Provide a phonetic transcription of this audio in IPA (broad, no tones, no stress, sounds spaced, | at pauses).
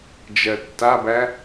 d͡ʒ ɜ tː a b æ